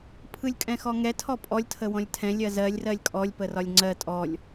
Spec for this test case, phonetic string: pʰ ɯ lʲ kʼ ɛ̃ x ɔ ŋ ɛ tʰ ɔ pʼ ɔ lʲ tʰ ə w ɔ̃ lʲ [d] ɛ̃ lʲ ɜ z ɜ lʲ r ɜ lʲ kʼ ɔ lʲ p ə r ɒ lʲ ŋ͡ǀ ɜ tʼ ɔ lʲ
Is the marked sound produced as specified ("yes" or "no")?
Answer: no